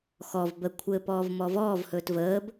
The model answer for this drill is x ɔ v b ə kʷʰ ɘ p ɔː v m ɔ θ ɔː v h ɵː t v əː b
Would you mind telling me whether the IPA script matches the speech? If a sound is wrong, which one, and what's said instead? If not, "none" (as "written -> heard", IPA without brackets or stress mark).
θ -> v